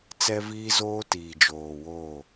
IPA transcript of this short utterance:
t͡s ɛ˦ v iː˦ z oː˦ t iː˨ d͡ʒ oː˨ w o˦˨

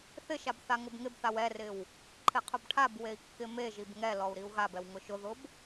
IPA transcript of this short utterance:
θ ɪ ʃ a b θ a ŋ ʊ b ŋ ɪ b θ a w ɛ r ɪ w | ǃʰ ɪ qʰ ʊ b ʈʰ a b w e i̯ kː ɪ m e ʒ i b ŋ ɛ l ɔ u̯ ɾ i u̯ ɣ a b ɛ w ŋ ʊ ʃ ʊ ð ʊ b

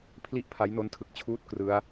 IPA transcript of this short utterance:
pʰ l i˥˩ ʔ pʰ a˦˥ j n o˦˥ n tʰ ɯ˨˩ k̚ t͡ɕʰ uː˥˩ t̚ k r ɯ˦˥ a̯

